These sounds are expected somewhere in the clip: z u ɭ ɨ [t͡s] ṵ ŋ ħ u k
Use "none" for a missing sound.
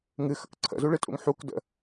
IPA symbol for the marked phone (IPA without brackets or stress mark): tʼ